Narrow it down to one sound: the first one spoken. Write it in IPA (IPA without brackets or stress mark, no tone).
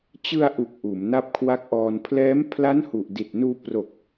t͡ɕ